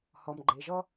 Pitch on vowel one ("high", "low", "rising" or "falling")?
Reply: low